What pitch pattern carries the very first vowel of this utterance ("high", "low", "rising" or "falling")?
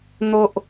low